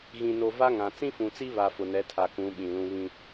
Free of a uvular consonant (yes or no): yes